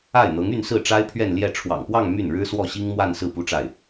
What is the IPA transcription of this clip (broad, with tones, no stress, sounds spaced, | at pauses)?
a˥˩ ɪ̯ n̪ ɤ˧˥ ŋ y˥˧ n s ɹ̩˥˩ ʈ͡ʂ a˥ ɪ̯ pʰ ɥ ɛ˥˧ n l j ɛ˥˩ ʈ͡ʂʰ w ɑ̰˨˩ ŋ p w ɑ˥˧ ŋ m y˥˩ n ɻ ɻ̩˥ s w ɔ˥˩ ɕ i˥ ŋ m w a˥˧ n s ɹ̩˥˩ p u˥ ʈ͡ʂ a˥˩ ɪ̯